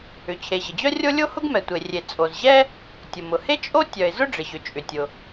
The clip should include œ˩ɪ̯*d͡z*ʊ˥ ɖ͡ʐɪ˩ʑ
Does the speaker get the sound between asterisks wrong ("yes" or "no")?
yes